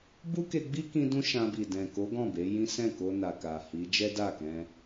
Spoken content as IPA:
b u˦ k e˧ ɡ͡b i˦ k ĩ˧ d ũ˦ ʃ ã˧ b i˨ d ɛ̃˨ k o˨˦ ɡ ɔ̃˦˨ b e˨˦ j ĩ˦ s ɛ̃˦˨ k o˧ n a˨ k a˨ h i˨˦ d͡ʒ ɛ˦ d a˦˨ k ɛ̃˧

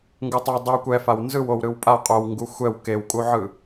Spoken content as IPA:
ŋ ɡ u tˤ e dˤ i w kʷ ɛ f a w n z ɯ w o w ɾ ɯ w pʼ a qʼ o w ŋ ɡ u xʷ ɛ w k e w kʼ u ʕ ɯ

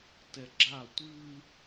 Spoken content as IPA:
t ɛ ɡ͡ǁ a tʷ ɨ

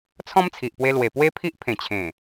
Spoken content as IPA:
t͡sʰ ɔ̃˦ m t͡sʰ i˨ ʔ p w e˧ l w e˨˩ p w e˦ pʰ i˦ ʔ pʰ ẽ˨˩ t͡ɕʰ ẽ˨˩

